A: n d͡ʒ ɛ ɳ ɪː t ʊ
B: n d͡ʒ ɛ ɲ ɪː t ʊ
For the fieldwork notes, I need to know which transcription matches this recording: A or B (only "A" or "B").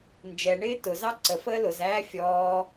A